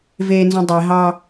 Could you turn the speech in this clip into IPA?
v eː n z ũ dˤ e ɦ ɑ

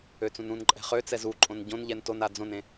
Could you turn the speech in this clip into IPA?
ø t͡s ũ n ũ n ǃʼ ɛ̤ χ ø t͡s ɛ z u ǃʼ õ n ɟ õ n ʎ ɛ n t o n a d͡z õ n ẽ

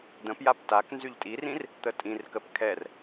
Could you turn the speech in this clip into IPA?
d̪ ə̃ p j a p t a k n z y ʎ tʼ i r ĩ r | t̪ ə tʼ ĩ r k ə p kʰ ɛ r

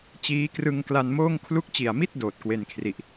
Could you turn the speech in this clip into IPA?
t͡ɕ iː˦˥ k r ɯ˧ ŋ k l a˧ n m oː˥˩ ŋ kʰ l u˦˥ k̚ t͡ɕ i˨˩ a̯ m i˥˩ t̚ d oː˨˩ t̚ k w e˧ n kʰ r i˨˩ ʔ

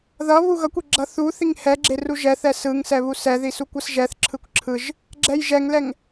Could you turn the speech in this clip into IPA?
ð ʌ β u ɣ ʌ kʷ e ɡ͡ǁ ʌ θ u θ i ŋ h ɛ ɡ͡ǁ e r u ʒ ɛ θ ɛ s ɯ ŋ s ɛ β u s ɛ ð i s u kʷ ʌ s ʒ ɛ θ ǁʰ ɯ kʷ ǁʰ ɯ ʒ | ɡ͡ǁ ɛ j ʒ ɛ ŋ l ɛ ŋ

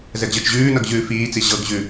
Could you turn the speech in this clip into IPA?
z ɛ ɡ ʑ ɤ t͡ʃ ʑ ʉː n ʌ ɡ ʑ ʉː f iː t͡s i ʑ ɤ ɡ ʑ ʉ

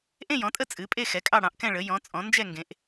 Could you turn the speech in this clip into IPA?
ʔ ẽ˥˨ j ɔ̃˩˥ tʼ ə˥˨ t͡sʼ ɨ˩˥ pʼ e˥˨ x ɛ˩˥ kʼ ɑ˥˨ ɽ ɑ̃˩˥ ʔ k ɛ̃˥˨ ɭ ə˩˥ j ɔ̃˩˥ t͡sʼ ɔ̃˩˥ n d͡ʒ ɛ˥˨ ŋ ɡ ẽ˩˥ ʔ

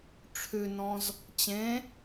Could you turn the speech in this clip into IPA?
ʈ͡ʂʰ ʉ n ɔ̃ z | t͡ɕ ẽ

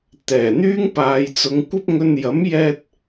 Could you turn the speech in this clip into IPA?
t̪ ɛː˨˩ n̪ yː˥ ŋ p aː˨ j t͡s ʊ˨˧ ŋ kʷ ɐ˥ p̚ ŋ ɵ˧ n j ɐ˨˥ m j ɛː˧ t̚

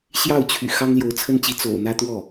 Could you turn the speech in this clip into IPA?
ɕ j ɑ˥˩ ʊ̯ t͡ɕʰ y̰˨˩ x ɑ˥ ŋ l j o˧˥ ʊ̯ t͡sʰ ə˥ n t͡ɕ i˧˥ t͡s o̰˨˩ ʊ̯ n̪ ä˥ t̪ w ɔ˥˩

